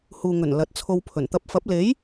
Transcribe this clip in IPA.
h uː˨ ŋ ɵ˨˩ n l ɐ˨ t̚ t͡sʰ o˧ w pʰ ɵ˨˩ n t̪ ɐ˨ p̚ f ɐ˨˥ p̚ l e˨˥ j

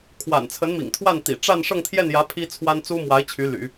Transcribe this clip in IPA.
kʰ w a̰˨˩ n t͡sʰ ə˧˥ n m ḭ˨˩ ŋ t̪ʰ w a˥˩ n t̪ ḭ˨˩ ʈ͡ʂ a˥˧ n ʂ ɤ˥˧ ŋ t̪ʰ j ɛ˥˩ n j ä˧˥ pʰ i˥ t͡sʰ w a˥ n t͡s u˥ m w a˧˥ ɪ̯ t͡ɕʰ y˧˥ l y̰˨˩˦

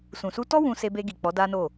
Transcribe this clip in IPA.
s ũ˨ s u˧ t ɔ˦ w ũ˧ s e˧ b e˧ ɡ i˨ k͡p ɔ˨˦ d a˦ n o˦˨

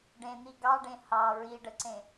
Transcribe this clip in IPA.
ɖ ẽ n̪ i ɡ ɑ ɖ ẽ h ɑ ɹ i ɖ ə ǀ ẽ

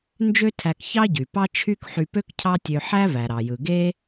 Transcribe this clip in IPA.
n d͡ʒ ø˥ tʰ æ˧ k ç ɑ˥ ɟ y˩ p ɑ˥ t͡ʃʰ y˥ k ħ y˧ p ø˥ k cʰ ɑ˥ tʲ ø˧ ħ æ˥ v æ˩ ɾ ɑ˩ j ɯ˩ ɡ e˥

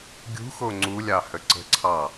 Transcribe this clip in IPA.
ɡʲ ṳ x o ŋ͡ǀ u lʲ ɑ h ə ǀ ə̤ ǀʰ ɑ

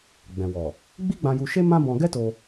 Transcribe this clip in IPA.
ɡ͡b ɛ̃˨ w ɔ˨ | ɡ͡b i˦ ɡ͡b ã˧ j u˧ ʃ e˦ m ã˦ b ɔ̃˧ ɡ ɛ˦ t o˧

